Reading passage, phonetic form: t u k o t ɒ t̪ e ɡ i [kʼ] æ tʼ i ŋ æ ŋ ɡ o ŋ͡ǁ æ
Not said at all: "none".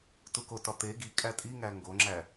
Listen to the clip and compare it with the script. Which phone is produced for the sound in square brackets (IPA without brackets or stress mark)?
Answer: kʼ